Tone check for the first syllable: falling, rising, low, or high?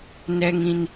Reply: low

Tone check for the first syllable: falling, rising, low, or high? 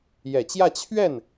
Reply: low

